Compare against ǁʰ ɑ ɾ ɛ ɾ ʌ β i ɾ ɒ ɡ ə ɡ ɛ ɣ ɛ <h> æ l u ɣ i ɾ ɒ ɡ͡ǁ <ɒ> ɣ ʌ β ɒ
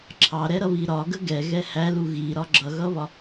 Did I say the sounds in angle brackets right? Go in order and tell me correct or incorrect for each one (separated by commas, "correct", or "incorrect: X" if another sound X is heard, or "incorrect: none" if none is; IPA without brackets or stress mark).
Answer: correct, incorrect: ʌ